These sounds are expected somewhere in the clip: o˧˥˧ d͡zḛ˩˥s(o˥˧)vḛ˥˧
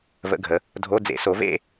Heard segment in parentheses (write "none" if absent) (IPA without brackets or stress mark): o˩˥